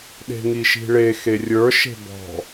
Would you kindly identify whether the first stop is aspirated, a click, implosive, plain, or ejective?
implosive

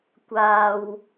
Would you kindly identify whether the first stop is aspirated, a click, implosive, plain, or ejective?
plain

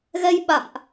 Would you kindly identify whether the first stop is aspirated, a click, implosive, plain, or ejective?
implosive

